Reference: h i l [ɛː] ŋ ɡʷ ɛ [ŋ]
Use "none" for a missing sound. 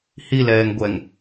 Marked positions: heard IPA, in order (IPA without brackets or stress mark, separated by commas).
ɛː, ŋ